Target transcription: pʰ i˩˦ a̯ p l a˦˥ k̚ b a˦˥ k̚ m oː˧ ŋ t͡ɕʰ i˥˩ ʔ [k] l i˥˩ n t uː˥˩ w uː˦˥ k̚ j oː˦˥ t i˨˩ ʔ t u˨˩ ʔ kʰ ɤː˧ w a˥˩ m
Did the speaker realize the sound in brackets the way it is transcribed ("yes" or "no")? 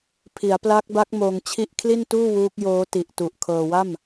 no